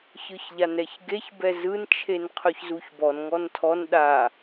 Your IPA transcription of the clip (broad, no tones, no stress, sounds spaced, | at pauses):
ç ɯ ç ʎ a n ɛ ç ɡ e ç b ɛ z ɯ n t͡ʃʰ e n qʰ ɵ ç z u ç b ɔ n ŋ ɔ n tʰ ɔ n ɗ a